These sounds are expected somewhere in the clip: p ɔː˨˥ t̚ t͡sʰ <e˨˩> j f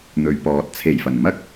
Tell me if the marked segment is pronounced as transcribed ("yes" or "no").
yes